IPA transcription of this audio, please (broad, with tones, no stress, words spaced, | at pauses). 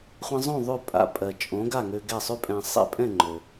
χʷə̃˧zˤõ˥˩ ðˤʉ˥˩ pʼa̰˧pʼɜ˩ t͡ʃʼõ˩˥ɡa˥˩ ŋø˧ɡɛ˥˩sˤʉ˥pʼɛ̃˧ sˤɛ̰˥˩pʼɛ̃˥˩ŋ͡ǃø˩